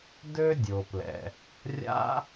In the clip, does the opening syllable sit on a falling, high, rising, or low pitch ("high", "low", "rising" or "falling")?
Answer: high